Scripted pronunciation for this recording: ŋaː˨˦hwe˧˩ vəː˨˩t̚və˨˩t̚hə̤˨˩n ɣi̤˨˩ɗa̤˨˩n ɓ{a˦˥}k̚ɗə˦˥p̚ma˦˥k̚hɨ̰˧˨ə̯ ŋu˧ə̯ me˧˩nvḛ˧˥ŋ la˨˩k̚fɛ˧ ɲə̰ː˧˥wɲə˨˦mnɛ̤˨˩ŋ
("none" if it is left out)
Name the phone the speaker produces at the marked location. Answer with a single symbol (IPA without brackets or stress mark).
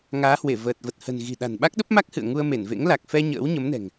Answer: a˦˥